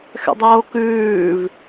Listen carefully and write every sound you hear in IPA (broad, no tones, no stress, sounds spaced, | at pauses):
x ɛ̰ dˤ oː k ʉː v